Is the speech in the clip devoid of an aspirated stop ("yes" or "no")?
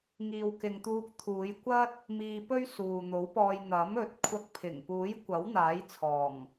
no